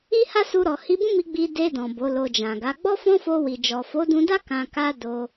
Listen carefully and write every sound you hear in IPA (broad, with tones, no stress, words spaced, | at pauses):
i˦ha˦ su˧ɾɔ˨ hi˧bũ˦mi˧ ɡ͡bi˧ de˧dɔ̃˨ bo˨˦lo˧ d͡ʒã˨ɡa˨˦ ɡ͡bɔ˦fɔ̃˦fo˧wi˨ d͡ʒɔ˨fo˨˦dũ˧da˦ kã˧ka˦ do˧